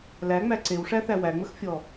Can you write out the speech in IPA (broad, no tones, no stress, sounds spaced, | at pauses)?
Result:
l æ ŋ͡m æ ǀ e w ʂ æ θ æ w æ ŋ͡m ə x fʲ ɔ